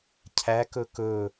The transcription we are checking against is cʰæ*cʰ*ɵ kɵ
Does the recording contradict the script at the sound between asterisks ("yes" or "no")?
yes